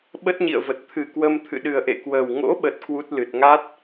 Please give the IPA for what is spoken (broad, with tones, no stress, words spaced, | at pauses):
ɓə˦˥t̚ɲḭ˧˨ə̯və˨˩t̚ t̪ʰɨ˨˩kwə˧m t̪ʰɨ̰˧˨ɗɨ˨˩ə̯ʔḛ˧˨kwəː˨˩w ŋo̰˧˥ɓə˨˩t̚ kwu˦˥t̚lɨ˨˩t̚ ŋa˦˥t̚